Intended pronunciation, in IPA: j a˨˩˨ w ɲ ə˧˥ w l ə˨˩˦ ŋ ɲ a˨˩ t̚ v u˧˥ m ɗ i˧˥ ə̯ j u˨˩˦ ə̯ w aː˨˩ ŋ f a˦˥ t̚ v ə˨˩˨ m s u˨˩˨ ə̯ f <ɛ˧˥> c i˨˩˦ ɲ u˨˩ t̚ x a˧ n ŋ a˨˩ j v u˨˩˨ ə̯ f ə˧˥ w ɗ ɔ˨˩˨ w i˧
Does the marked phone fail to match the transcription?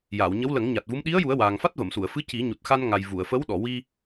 yes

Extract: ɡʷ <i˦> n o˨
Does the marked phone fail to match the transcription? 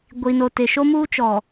yes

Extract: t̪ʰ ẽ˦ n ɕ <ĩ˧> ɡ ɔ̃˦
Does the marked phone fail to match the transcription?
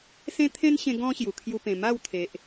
yes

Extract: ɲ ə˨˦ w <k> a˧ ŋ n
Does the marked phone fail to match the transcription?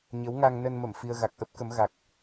yes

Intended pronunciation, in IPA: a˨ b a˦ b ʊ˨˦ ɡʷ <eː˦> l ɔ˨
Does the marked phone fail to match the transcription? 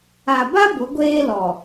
no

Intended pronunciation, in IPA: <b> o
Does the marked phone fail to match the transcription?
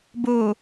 no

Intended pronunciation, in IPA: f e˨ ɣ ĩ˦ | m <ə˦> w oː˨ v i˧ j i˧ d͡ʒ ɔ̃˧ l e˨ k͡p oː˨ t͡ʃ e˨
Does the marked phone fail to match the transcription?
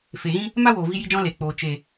yes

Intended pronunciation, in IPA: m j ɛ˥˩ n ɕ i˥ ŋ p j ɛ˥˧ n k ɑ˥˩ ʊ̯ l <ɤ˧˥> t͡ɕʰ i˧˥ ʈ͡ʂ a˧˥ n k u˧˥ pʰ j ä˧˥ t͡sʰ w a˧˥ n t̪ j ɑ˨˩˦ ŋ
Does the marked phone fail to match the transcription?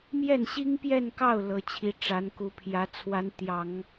no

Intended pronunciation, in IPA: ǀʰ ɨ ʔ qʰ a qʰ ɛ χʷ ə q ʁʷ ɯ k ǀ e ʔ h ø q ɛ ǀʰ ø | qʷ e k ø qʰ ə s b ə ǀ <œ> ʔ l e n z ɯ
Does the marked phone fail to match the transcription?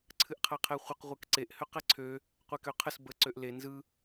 yes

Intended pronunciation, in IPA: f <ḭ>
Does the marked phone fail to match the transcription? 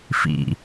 no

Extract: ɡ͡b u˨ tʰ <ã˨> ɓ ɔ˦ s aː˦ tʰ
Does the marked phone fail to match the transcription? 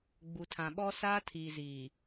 no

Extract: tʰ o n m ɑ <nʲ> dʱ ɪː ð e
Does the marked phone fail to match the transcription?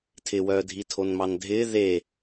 yes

